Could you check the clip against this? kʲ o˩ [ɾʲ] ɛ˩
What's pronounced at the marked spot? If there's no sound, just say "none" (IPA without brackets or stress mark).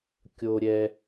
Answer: ɾʲ